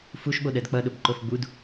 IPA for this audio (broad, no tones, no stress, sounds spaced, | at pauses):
f u ʃ ɓ o ɗ ɜ d k͡p ʌ ɗ ʊ b ǃ o f ɡ͡b u d